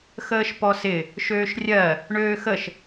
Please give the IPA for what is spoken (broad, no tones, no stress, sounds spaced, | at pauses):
x əː ʃ p ɔ s ɪ | ʃ øː ʃ rʲ ɜ | ɳ øː x ə ʃ